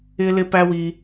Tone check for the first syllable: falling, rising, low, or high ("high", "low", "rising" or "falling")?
high